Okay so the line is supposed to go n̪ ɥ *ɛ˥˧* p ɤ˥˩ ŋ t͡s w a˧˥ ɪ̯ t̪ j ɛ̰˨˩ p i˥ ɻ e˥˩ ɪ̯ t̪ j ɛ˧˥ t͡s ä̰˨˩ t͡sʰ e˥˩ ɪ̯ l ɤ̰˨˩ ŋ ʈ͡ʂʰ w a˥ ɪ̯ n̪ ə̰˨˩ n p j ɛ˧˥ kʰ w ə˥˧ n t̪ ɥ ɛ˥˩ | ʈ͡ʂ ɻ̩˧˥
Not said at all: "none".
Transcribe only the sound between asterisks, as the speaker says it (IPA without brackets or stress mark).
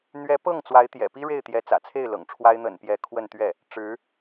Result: ɛ˧˥